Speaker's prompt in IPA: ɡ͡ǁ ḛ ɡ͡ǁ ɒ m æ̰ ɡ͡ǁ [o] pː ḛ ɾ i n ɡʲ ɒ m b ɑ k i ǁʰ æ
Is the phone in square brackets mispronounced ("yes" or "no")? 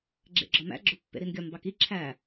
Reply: no